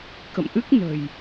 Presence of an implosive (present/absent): absent